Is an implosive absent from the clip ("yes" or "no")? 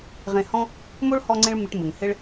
yes